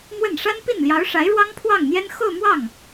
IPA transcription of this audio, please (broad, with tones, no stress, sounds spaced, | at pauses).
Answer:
n̪ w ə˥˩ n ʂ a˥ n p i˥˩ n l j ɑ˧˥ ʊ̯ ʂ a˧˥ ɪ̯ ɻ w ɑ˥ ŋ pʰ w ɑ˥˩ ŋ n̪ j ɛ˥ n x o˥˧ ʊ̯ m w ɑ˥˩ ŋ